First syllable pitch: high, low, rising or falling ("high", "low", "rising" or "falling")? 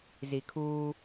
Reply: low